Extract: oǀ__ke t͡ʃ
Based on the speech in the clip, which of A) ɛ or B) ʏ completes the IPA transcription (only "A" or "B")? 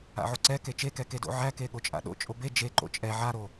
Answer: A